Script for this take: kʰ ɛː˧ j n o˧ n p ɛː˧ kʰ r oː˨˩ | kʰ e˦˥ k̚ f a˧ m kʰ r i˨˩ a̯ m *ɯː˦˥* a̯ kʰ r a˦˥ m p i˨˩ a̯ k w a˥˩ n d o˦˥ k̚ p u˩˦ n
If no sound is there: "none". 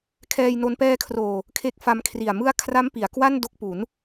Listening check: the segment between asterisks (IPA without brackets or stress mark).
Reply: ɯ˦˥